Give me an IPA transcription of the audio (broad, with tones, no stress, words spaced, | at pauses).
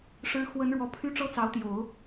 ʂɻ̩˧˥ xwə˧˥nɻwɔ˧˥pʰy˥ ʈ͡ʂɤ˥t͡sɑ˧˥ʊ̯t̪jo˨˩˦ʊ̯